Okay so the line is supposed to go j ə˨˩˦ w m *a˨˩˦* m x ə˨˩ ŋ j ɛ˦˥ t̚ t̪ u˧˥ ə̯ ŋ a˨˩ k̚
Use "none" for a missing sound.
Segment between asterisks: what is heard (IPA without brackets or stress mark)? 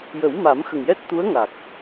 a˨˩˦